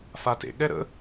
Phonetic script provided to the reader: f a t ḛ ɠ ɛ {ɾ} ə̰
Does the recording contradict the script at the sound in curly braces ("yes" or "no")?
no